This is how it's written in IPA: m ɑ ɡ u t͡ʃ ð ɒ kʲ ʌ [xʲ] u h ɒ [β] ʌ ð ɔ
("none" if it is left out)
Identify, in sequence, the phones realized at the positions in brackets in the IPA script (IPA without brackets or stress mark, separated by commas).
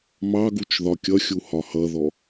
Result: xʲ, h